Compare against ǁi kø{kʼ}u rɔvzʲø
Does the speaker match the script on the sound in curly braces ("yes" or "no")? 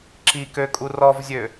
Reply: yes